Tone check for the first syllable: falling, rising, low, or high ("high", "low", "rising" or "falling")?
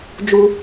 high